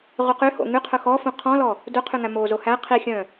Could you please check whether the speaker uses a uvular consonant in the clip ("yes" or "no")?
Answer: yes